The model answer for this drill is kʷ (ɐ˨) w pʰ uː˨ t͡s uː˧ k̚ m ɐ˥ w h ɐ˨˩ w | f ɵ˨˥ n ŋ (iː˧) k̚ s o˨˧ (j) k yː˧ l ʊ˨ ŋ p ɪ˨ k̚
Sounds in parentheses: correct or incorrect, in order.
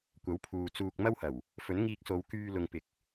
incorrect, correct, incorrect

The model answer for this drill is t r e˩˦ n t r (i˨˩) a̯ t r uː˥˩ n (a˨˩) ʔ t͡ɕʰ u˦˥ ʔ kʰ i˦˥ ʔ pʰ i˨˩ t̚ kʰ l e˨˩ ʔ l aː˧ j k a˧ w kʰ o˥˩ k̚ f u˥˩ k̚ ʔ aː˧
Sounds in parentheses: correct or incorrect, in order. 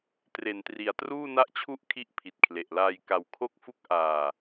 correct, incorrect

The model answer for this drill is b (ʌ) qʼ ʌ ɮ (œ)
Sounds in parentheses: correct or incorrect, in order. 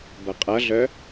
correct, correct

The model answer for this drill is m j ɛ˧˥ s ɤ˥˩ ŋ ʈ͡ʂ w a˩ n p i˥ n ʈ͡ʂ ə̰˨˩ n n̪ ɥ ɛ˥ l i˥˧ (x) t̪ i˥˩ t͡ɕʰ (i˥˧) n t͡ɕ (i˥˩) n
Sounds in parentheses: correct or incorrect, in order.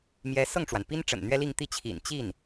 incorrect, incorrect, correct

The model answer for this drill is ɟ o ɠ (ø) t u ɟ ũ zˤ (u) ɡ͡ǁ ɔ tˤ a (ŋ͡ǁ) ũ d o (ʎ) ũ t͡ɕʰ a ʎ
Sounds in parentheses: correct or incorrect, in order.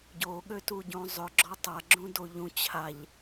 correct, incorrect, incorrect, correct

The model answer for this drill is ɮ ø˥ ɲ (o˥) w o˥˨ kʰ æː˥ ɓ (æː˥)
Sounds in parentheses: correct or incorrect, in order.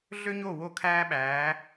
incorrect, incorrect

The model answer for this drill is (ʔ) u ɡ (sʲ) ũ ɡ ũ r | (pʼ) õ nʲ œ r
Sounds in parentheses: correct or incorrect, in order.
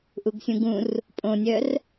correct, correct, correct

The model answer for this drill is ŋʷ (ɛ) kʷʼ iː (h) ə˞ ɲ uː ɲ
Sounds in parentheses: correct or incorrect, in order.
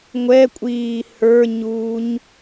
correct, correct

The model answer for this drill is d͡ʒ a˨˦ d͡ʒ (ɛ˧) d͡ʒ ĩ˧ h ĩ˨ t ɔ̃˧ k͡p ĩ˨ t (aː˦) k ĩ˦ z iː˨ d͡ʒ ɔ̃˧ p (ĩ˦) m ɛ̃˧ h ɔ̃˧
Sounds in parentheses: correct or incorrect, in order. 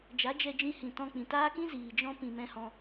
correct, correct, incorrect

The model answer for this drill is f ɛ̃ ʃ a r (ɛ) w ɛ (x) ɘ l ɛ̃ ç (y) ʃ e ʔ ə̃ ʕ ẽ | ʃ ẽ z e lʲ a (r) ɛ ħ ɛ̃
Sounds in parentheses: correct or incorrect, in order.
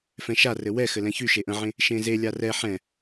incorrect, correct, correct, correct

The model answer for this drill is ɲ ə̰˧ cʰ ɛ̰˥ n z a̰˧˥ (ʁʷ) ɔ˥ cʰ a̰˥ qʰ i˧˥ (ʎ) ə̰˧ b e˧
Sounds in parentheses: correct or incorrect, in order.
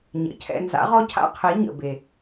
incorrect, incorrect

